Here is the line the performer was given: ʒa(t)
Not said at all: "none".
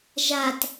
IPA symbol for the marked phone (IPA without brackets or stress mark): t